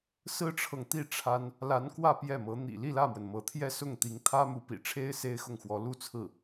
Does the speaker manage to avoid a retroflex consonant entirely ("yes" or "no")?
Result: no